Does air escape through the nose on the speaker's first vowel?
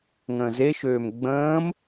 yes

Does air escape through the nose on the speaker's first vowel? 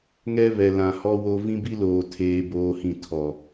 no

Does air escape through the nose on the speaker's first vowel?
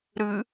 no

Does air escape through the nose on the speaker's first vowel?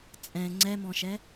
yes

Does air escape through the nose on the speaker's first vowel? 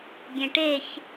yes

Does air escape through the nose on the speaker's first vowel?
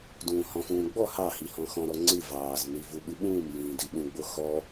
yes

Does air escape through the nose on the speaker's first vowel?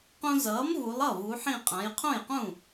yes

